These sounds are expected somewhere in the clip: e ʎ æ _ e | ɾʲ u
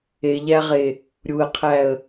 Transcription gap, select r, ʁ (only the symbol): ʁ